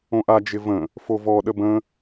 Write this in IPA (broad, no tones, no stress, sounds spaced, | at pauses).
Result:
õ ʔ a d͡ʒ ɪ v ə̃ | f o v ɔ ɗ ə b ə̃